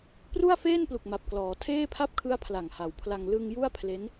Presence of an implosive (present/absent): absent